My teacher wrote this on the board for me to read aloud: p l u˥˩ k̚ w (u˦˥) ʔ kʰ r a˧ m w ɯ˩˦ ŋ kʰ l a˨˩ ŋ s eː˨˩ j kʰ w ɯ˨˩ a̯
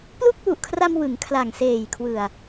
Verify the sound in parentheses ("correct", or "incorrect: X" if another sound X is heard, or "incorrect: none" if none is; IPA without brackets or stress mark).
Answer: incorrect: u˨˩